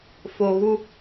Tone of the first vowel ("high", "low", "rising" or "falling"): low